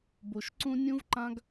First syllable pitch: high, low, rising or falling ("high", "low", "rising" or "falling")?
low